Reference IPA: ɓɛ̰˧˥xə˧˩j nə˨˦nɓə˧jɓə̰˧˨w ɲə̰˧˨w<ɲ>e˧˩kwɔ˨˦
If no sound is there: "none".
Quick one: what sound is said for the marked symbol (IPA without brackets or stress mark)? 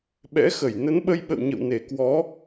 n